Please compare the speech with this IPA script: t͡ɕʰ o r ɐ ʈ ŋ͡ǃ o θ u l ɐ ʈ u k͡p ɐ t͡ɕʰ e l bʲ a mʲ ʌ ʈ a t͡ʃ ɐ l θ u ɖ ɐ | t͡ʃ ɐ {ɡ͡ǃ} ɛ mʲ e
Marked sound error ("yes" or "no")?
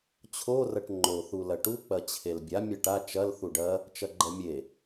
no